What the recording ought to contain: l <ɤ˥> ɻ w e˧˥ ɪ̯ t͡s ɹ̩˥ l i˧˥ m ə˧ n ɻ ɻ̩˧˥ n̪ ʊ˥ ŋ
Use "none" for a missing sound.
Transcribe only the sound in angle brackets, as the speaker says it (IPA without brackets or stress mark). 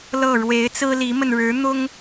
ɤ˥˩